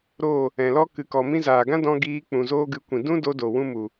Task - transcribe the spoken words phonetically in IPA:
ɾ o˦˨ | ɛ̃˨ l ɔ˦ k ɨ˨ k ɔ˨ m ĩ˦ z aː˨ ɡ ã˦ d ɔ̃˧ ɡ iː˧ k͡p ũ˨ z oː˦ ɡ ɨ˧ kʷ ĩ˨ d ũ˦ d o˧ d o˨ w ũ˦ m u˨

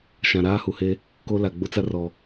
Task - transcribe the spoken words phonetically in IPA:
ʃ ã˨ ɾ aː˦ h u˨ h e˦ | k o˦ l a˨ ɡ͡b ʊ˦ t͡s a˦ r ɔ˨

